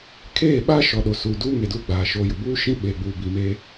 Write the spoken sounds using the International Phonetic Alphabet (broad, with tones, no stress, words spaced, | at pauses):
kʰeː˦˨ɓa˦ ʃɔ˨ɗo˨suː˨duː˦ ŋe˨duː˦˨ɡ͡baː˨ ʃoː˨jʊ˨ buː˦ ʃĩ˦ɓeː˨ɡ͡buː˨ bi˨meː˦